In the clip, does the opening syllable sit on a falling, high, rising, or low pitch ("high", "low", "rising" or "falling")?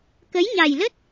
rising